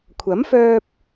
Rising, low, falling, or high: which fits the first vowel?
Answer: rising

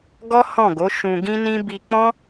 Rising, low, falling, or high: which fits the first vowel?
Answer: high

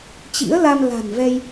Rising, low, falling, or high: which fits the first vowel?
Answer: rising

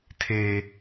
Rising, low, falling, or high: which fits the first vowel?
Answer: low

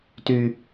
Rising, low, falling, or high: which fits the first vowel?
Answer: high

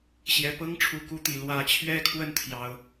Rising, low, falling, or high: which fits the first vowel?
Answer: low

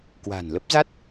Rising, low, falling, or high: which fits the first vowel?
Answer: low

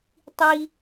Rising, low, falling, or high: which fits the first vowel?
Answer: high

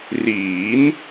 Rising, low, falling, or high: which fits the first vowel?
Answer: rising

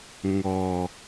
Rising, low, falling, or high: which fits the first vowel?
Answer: low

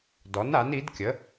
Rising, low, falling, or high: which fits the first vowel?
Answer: rising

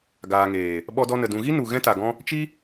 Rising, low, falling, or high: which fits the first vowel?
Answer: low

